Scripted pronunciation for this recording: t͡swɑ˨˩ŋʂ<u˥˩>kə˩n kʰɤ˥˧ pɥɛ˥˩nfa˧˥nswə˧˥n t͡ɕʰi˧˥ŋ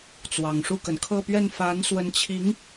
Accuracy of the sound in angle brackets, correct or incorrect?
correct